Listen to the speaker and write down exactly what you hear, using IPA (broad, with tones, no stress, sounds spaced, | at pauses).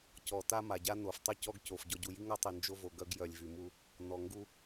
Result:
c ɔ˨ t a˦ m a˨ ɟ a˦ n o˨ f tˤ y˦ c ɔ˦ ɡ c o˨ f ɟ ɔ˨ ɟ u˨ j i˦ ŋ a˦ tˤ i˨ n d͡ʒ o˦ v o˨ ɡ œ˦ ɡ j œ˨ lʲ v y˨ m u˦ | n ɔ˨ ŋ ɡ u˦